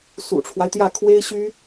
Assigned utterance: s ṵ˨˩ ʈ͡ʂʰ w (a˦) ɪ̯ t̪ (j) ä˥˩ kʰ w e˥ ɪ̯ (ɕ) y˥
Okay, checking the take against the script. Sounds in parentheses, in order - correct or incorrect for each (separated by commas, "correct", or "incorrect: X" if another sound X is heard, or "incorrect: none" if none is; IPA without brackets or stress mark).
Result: correct, correct, correct